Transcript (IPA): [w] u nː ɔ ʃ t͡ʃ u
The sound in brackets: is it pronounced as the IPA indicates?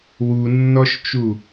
yes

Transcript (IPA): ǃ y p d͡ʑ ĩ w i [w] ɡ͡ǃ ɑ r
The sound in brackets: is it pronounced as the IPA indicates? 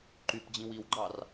yes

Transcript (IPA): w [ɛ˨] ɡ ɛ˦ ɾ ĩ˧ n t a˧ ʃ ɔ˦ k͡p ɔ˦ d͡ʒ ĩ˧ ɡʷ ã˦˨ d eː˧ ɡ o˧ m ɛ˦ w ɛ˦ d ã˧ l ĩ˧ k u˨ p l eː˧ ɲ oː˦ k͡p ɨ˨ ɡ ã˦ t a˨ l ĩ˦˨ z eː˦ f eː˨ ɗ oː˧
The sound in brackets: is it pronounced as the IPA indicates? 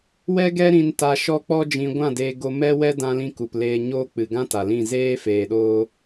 no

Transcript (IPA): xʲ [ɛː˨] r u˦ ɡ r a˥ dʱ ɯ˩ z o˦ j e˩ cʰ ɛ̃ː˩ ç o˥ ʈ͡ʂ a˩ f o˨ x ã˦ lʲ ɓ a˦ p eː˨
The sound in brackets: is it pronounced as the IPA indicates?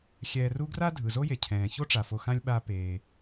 yes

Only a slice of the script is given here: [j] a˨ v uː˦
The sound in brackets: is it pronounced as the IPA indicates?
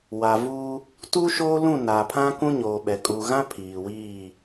no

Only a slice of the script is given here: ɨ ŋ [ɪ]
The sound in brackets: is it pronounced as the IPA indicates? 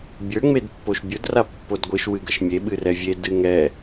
no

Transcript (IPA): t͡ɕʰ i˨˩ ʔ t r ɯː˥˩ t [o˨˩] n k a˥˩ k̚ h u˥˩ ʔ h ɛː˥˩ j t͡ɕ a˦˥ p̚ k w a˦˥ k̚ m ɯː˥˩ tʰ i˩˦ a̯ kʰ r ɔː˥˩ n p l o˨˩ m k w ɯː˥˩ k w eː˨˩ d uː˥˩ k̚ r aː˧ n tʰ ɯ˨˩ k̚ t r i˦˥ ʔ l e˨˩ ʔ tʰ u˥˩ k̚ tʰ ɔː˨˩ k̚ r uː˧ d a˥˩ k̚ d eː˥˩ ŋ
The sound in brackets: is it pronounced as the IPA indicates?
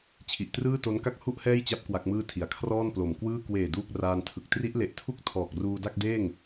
no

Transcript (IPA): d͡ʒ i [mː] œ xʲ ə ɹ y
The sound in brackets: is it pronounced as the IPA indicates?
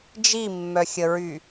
yes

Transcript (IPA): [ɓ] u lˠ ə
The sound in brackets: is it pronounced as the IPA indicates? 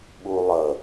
yes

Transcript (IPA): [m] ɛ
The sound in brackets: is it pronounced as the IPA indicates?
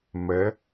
yes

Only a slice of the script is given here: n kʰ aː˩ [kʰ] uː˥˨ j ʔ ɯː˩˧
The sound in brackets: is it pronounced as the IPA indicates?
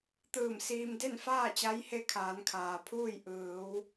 no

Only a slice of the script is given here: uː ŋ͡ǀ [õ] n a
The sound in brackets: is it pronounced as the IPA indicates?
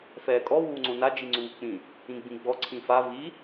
yes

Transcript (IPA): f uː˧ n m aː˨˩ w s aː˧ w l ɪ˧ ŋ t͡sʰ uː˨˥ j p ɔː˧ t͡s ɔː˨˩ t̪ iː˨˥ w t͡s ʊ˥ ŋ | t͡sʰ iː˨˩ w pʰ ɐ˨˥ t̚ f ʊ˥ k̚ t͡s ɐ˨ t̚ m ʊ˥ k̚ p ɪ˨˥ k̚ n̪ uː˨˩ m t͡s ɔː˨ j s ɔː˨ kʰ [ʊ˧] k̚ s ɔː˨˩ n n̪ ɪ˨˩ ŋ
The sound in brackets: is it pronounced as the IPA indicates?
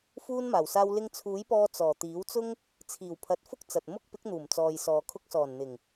yes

